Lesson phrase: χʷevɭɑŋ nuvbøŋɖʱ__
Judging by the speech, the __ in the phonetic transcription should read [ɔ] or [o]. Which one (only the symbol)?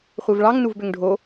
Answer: o